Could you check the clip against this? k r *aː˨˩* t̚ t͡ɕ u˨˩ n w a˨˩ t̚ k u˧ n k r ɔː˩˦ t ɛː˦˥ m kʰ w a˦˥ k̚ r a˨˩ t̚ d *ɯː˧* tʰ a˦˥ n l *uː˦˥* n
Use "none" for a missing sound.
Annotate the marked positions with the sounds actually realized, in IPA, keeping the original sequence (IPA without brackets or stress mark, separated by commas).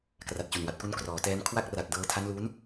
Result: a˨˩, ɤː˧, uː˦˥